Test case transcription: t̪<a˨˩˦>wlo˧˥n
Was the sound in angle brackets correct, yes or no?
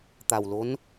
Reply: no